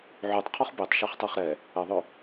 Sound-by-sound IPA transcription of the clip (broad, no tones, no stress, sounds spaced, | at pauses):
ʕ y tˤ qʰ ɔ χ b e tˤ ʃ a χ tˤ ɛ χ ɾ ɛ | ə ðˤ ø